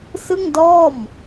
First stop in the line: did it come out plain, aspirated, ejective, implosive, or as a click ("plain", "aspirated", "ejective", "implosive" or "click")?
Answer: plain